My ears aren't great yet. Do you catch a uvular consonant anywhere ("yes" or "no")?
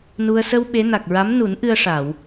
no